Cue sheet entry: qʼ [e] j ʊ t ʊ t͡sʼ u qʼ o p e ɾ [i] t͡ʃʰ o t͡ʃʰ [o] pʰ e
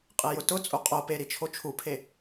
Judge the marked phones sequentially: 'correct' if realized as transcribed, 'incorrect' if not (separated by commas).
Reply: correct, correct, incorrect